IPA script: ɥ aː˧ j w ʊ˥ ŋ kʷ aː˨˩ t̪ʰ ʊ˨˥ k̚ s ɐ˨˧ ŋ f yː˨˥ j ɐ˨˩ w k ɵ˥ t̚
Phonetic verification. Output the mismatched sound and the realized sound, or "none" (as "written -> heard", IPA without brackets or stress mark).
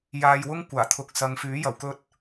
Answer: ɥ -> j